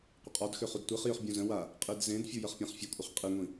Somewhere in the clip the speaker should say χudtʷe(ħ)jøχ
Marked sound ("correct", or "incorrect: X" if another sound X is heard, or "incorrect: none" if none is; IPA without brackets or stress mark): incorrect: χ